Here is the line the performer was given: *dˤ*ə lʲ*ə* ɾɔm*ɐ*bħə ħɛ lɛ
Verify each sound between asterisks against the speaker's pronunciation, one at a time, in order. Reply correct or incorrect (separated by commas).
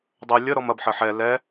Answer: correct, correct, correct